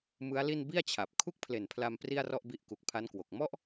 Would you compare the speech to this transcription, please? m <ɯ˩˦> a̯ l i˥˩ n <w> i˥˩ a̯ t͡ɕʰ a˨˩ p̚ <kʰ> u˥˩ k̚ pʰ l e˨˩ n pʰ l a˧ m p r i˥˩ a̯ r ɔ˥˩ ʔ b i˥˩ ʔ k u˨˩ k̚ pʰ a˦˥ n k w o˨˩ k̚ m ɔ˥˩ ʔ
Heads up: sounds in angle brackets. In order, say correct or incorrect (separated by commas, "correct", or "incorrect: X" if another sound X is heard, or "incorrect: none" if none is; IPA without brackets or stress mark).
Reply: incorrect: ɯ˦˥, incorrect: b, correct